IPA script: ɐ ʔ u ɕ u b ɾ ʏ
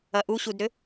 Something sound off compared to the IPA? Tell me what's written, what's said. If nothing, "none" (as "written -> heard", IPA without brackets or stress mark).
b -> d